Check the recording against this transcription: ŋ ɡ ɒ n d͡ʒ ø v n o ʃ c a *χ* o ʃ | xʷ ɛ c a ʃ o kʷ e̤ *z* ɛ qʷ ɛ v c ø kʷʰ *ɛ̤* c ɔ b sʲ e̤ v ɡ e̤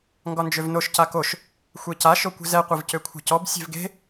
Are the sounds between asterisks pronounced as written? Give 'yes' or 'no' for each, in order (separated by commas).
no, yes, yes